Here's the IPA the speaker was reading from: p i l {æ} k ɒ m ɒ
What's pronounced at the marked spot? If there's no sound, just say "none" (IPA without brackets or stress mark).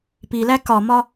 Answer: æ